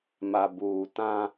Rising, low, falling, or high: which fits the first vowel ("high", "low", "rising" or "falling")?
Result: low